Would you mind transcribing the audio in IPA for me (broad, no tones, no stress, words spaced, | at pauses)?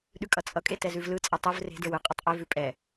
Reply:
ɗʉkʼʌt͡sʼʌkʼe tɛzʉvlɯt͡sʼʌ tˤɯv re̤də˞w ɯqʼɯtˤ ʔevʉ pʼɛ